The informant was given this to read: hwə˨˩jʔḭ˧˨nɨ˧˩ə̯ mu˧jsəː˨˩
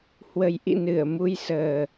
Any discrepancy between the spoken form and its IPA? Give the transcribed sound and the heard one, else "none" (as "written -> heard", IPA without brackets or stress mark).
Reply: none